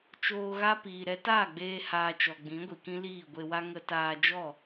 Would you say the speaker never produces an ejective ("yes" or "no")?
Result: yes